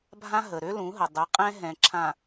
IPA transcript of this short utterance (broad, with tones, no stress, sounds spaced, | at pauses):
bʱ ã˦ ɦ ə˨ ɾ ø˦ l ũ˨˦ ɦ ə˨ dˤ ɛ˨˦ qʼ ɛ̃˦ ɦ ɛ̃˨ ǁʰ ã˨